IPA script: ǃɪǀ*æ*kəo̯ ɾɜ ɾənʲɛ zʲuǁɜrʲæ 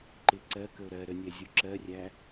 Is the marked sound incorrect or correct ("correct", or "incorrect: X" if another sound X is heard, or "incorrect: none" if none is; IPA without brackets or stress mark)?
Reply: incorrect: ɜ